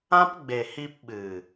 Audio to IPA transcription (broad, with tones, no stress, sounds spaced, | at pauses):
ã˦ p ɡ͡b e˨ h i˧ p ɓ ɨ˨